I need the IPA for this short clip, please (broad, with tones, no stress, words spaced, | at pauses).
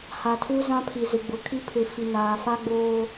ha˨tʰu˦ zã˦pʰi˨ zɪ˨ɡ͡bʊ˨kʰi˦ pʰɪ˨ fi˨naː˨ fa˦ɡ͡boː˦